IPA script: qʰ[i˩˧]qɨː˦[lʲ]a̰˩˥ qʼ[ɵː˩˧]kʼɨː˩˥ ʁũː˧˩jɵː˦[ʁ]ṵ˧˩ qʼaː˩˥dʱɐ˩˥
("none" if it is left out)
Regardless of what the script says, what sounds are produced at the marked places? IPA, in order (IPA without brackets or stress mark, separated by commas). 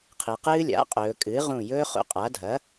i˩˧, lʲ, ɵː˩˧, χ